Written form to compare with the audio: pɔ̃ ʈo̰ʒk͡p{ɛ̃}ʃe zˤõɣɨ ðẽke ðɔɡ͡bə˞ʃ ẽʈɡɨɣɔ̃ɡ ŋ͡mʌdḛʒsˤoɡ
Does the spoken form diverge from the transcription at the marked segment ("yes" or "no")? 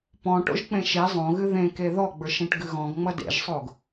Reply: yes